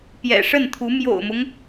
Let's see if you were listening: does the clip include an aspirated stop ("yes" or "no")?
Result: yes